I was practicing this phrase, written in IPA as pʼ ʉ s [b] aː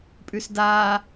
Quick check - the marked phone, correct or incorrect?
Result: incorrect: d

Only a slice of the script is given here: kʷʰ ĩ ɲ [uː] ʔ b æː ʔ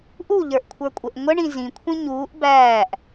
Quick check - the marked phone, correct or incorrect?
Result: correct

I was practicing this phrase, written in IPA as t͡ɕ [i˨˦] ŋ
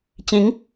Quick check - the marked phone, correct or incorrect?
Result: incorrect: ĩ˨˦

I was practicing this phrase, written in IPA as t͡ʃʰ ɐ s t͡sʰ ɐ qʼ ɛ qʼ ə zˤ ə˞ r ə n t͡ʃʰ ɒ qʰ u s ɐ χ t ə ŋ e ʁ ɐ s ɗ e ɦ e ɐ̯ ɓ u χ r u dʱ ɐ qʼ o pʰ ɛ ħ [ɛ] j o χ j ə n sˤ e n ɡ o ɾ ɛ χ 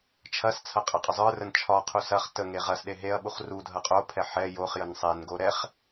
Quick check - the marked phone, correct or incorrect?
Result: correct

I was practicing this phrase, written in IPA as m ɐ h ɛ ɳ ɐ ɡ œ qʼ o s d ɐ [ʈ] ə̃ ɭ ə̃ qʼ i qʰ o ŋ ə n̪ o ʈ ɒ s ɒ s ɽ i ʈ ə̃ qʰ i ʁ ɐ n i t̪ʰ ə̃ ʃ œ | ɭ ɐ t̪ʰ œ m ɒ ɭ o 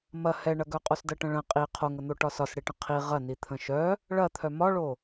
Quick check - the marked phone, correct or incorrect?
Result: correct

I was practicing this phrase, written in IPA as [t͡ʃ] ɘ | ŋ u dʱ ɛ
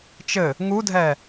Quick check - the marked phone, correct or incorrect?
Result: correct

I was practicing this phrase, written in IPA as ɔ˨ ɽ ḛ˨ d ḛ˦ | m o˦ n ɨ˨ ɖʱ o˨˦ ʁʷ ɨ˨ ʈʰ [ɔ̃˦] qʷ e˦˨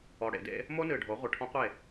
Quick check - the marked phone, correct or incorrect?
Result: correct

